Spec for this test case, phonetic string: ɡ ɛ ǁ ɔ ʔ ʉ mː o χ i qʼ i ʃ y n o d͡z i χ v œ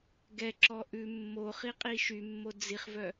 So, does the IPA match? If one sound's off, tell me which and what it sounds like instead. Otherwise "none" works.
n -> mː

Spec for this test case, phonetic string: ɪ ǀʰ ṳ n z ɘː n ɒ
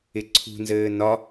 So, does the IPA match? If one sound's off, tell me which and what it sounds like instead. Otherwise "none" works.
none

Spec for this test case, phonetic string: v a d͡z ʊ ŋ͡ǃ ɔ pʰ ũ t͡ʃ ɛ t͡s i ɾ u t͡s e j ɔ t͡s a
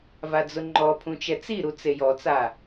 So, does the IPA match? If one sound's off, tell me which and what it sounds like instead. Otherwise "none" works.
none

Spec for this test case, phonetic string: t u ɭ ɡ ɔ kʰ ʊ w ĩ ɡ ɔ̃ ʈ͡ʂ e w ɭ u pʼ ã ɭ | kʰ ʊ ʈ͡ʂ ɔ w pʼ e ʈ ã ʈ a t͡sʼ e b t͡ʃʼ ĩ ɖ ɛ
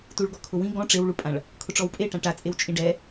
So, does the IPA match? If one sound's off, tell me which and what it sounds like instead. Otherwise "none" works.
b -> w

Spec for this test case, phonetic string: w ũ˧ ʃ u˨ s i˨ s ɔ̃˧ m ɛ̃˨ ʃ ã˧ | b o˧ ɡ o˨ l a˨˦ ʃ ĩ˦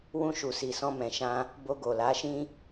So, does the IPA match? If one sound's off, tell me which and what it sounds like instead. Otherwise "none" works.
none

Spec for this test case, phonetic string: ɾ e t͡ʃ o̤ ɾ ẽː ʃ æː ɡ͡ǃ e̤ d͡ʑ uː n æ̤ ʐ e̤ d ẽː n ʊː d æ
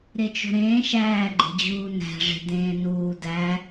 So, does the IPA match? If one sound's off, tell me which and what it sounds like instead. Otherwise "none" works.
ʊː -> uː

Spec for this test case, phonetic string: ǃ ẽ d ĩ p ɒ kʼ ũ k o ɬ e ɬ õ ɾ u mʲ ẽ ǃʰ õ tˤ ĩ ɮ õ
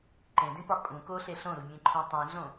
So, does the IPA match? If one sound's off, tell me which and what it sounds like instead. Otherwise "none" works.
none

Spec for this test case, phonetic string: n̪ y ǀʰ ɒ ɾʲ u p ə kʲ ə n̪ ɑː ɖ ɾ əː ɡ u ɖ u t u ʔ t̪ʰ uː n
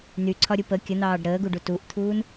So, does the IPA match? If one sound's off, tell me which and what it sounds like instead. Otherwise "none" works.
none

